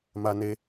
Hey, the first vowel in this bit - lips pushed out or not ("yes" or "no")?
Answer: no